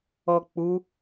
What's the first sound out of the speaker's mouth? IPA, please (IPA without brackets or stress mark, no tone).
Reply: ɔ